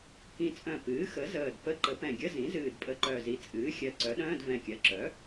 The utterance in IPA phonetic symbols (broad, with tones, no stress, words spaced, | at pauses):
kĩ˨˩t͡sʼœ̃˨˩ pɨː˩˥xə˩˥ zəː˨˩d pə˧˥˧ǃə˩˥ pɛ̃˨˩ɡʲə˧˥˧zĩ˩˥ zɨː˨˩dpʼə˨˩ǃœ˨˩zi˩˥ t͡sʼɨː˩˥ xʲɜ˨˩ǀœ˩˥ɗœ̃ː˧˥˧d vɛ̃˨˩kʲɜ˩˥ǁœ˩˥